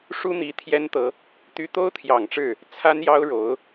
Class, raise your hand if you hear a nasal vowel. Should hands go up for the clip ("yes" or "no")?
no